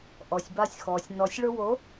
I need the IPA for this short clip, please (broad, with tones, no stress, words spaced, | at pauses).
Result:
ʔɔ˨sʲba˧sʲxɔː˨sʲ nɔ˨sʲɭʊ˧wo˨˦